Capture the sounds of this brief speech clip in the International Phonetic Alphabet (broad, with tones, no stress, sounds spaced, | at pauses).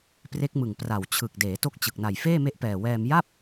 p r e˦˥ k̚ m ɯ˨˩ ŋ p r a˨˩ w t͡ɕʰ ɯ˨˩ k̚ d eː˩˦ t o˦˥ k̚ t͡ɕ ɯ˨˩ k̚ n a˨˩ j f eː˥˩ m e˦˥ ʔ p ɛː˨˩ w ɛː˧ m j a˥˩ p̚